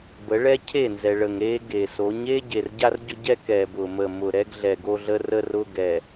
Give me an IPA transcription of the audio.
b ə˨˦ ɭ ɛ˦ cʰ e˦˨ n z ɛ˨ ɭ ə˨ ŋ ɾ e˦ ɡ e˨ s o˨˦ ɲ e˦ ɟ e˨ r ɟ a˦ r ɟ ʊ˦ ɟ ɛ˦ k ɛ˨ b ʊ˨ m ə˨ m ʊ˨ ɾ ɛ˦ ɡ ɮ ɛ˨ ɡ o˦ ɮ ə˦ r ə˦ r ʊ˦ ɡ ɛ˨

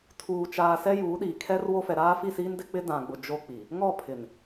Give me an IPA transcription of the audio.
tʰ uː˨ t͡ʃ aː˨ s ɛ˦ j uː˨˦ ɗ iː˨ kʰ ɛ˦ r w o˦ f ɛ˨ ɾ aː˦ f i˦˨ s iː˦ n d ɪ˦ k͡p ɪ˦ d ã˨ ɡ͡b ʊ˨ d͡ʒ o˦ k͡p i˨ | ŋ ɔ˦˨ pʰ ɪ˨ n

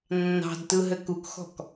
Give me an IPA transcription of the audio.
nː ɑ̤ d t ɯ ɦ ɘ k u k x ɔ̤ k

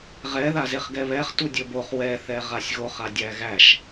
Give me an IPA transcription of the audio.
ʁ ɛ ð a z e χ ɡ ɛ β ɛ χ t u dʲ ɵ b o χ w ɛ θ ɛ ʁ a sʲ ɣ o χ a dʲ æ ɣ æ ʃ

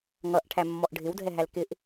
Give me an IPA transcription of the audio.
ŋ ʌ ʔ ʈʰ æ mː ɔ ʔ ɖʱ ɪ w dʱ ɛ ɦ æ l k ɪ ʔ

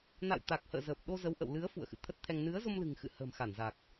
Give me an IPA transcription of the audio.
n a̰˧˨ w t̪ a˨˩ k̚ h ə̰ː˧˨ z əː˨˩ p̚ ɗ o˧ z ə˨˦ w ʔ ə̰˧˨ w l ɨ˨˦ ə̯ f ṵ˧˨ ə̯ x ɨ̰˧˨ t̪ʰ ə˦˥ t̚ t̪ʰ ɛ˧ ŋ n ɨ˨˦ ə̯ z o˧ m l ɨ̤˨˩ ŋ x ɨ̰˧˨ h ə̤ː˨˩ m x a˧˩ n z a˨˩ k̚

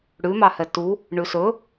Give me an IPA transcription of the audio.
ɽ ʉ m ɑ h ɛ t u | ɳ ʉ s ɵ

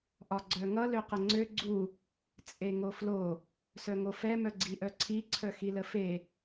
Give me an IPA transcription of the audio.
ʔ ɒ ɡ͡ǀ œ ŋ ʌ l ø q ə ŋ͡ǀ ø ɡ͡ǀ u | t͡sʼ e ŋ o f l o | s œ ŋ o f ɛ m œ ɡ͡ǀ i ʔ œ ǀʰ i ǀʰ œ x i l ə f e

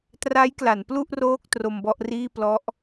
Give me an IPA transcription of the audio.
t r a˦˥ j k l a˩˦ n p l u˥˩ ʔ r oː˥˩ k̚ t r o˧ m b ɔ˥˩ ʔ r iː˥˩ p l ɔ˦˥ ʔ

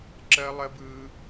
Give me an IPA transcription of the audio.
ǁ ɜ˦ lˠ ɜ˦ b ɯ˦

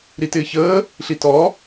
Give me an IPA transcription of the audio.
ɾ i t ɪː ç əː | ɬ i t ɔ

